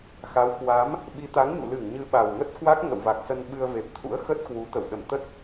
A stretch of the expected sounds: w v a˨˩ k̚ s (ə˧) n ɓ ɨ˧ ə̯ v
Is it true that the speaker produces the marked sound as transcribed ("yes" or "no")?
yes